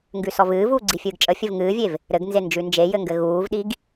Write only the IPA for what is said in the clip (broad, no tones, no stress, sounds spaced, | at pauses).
ŋ ɡ ʉ s ɔ v ɨː v uː ɡ͡ǀ i fʲ ɨː ɡ t͡ʃʼ ə fʲ ɘ v ŋ ɨː vʲ e v | ɾ ɘ ɡ n z e n d͡ʒ ʉ n d͡ʒ e j ɘ ŋ ɡ ɘ ɣ uː v ɗ i ɡ